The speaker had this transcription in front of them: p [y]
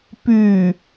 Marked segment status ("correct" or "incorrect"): correct